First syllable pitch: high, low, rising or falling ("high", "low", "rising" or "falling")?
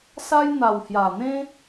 high